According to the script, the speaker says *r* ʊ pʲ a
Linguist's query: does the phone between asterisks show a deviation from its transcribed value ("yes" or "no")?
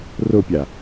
no